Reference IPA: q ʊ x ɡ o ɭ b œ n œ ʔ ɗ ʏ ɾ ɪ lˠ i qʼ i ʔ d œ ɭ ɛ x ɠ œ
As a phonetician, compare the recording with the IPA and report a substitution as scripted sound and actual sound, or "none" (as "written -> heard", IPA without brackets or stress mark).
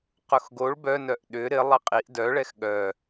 none